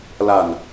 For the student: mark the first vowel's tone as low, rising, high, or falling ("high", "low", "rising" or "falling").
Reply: low